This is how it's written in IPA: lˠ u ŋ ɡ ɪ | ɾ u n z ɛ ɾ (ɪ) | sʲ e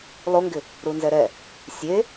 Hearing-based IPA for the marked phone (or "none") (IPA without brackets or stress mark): ɛ